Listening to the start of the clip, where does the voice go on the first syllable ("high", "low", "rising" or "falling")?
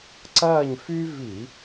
falling